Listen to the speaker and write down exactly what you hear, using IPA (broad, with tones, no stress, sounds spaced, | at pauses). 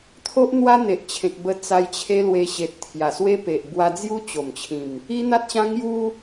t̪ʰ o˦ ʔ n̪ w a˦ n̪ e˨ ʔ t͡ɕʰ ẽ˨ k̚ b ə˧ t͡s a˧ j t͡ɕʰ e˦ l w e˧ ɕ e˨ t̚ t̪ʰ j a˨˩ s w e˦ p e˨ ʔ b w a˧ d͡z j u˦ t͡ɕ o˨˩ m t͡ɕʰ ĩ˨˩ m | i˦ n̪ a˦ t̚ ɕ ã˦ ŋ j u˦